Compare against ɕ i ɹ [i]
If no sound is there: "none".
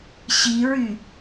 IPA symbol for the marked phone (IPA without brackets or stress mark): y